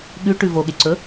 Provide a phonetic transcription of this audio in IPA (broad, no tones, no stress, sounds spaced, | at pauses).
ɠ ʉ ʈ ʉ v o ɠ e ǀ ɵ